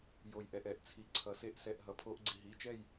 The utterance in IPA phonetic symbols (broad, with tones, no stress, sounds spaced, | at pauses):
j o˩ j ʔ ɛ˩ ʔ ɛ˧˩˧ ʔ t͡sʰ i˩ ǀʰ ʌ˩ s e˧˩˧ ʔ s ɛ˩˧˩ ʔ ɦ ʌ˩ pʰ o˧˩˧ ʔ ɡ͡ǀ i˩ ɦ i˩˧˩ t͡ʃ ɛ˥˨ j